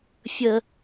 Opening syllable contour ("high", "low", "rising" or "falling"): high